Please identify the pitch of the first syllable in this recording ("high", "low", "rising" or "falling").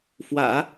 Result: low